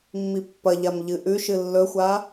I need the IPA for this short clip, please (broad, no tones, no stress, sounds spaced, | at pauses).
mː i pː ɐ ʎ a m ʎ ɨ ʔ ʉ ʃ ɨ lː ɵ xʷ a